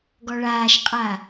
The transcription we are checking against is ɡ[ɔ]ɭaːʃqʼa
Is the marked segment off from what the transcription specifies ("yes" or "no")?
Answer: no